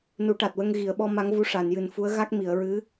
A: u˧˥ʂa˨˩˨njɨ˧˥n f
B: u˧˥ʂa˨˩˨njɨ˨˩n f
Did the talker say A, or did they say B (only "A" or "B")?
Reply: B